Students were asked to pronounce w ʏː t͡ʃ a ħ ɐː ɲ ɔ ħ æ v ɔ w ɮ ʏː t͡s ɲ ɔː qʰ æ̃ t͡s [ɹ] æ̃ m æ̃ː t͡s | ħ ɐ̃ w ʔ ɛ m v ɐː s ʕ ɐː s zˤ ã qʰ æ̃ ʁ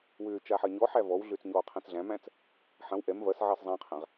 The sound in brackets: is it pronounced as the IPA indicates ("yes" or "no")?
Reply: no